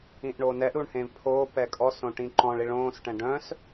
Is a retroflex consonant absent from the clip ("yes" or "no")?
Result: no